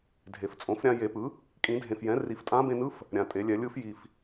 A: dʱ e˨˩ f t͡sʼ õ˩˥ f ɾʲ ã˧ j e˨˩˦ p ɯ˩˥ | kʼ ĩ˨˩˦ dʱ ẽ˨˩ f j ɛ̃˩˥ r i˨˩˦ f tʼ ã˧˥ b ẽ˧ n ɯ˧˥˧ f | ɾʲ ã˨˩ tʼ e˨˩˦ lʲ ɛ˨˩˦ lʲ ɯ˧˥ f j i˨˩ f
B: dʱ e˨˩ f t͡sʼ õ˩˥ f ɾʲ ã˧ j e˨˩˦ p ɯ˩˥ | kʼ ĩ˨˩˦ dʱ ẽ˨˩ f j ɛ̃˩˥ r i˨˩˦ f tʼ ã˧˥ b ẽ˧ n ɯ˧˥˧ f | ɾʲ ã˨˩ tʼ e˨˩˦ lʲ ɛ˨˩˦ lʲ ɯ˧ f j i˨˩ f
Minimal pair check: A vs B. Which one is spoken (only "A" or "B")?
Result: A